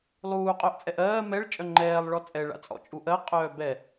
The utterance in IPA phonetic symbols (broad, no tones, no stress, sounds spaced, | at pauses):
lˠ uː qʼ œ ʔ t͡sʼ ɛ ʔ ɜː m ɛ ɭ t͡ʃʼ œ ŋ͡ǃ ɛː lˠ ɭ ɔ t͡sʼ ɛ ɭ a̰ t͡sʼ ɔ̰ t͡ʃʼ u ʔ ɜ qʼ œː b ɛ